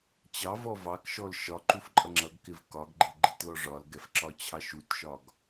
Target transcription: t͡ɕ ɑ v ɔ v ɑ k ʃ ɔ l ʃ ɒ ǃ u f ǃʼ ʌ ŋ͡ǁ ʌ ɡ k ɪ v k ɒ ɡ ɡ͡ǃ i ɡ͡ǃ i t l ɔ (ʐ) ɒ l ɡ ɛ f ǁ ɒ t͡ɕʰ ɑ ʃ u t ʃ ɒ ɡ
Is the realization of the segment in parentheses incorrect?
no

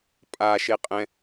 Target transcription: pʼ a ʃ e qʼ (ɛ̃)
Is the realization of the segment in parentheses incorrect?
no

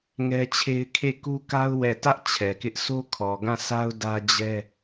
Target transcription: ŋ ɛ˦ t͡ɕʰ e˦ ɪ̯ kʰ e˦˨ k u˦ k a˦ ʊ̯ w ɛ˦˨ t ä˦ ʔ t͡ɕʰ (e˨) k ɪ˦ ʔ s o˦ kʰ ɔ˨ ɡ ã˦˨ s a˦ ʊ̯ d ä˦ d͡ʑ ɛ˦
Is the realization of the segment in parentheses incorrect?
yes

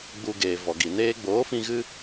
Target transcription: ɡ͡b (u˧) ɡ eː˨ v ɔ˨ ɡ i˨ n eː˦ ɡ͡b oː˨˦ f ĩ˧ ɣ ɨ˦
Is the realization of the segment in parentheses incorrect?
no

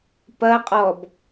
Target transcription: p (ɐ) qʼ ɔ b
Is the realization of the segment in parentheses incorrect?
no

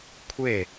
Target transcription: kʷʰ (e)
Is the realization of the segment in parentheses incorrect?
no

